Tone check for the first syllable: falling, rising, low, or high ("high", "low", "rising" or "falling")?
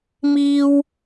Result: high